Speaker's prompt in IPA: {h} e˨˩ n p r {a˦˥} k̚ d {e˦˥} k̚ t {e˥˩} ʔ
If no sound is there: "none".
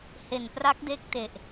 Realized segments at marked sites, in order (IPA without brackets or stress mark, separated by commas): h, a˦˥, e˦˥, e˨˩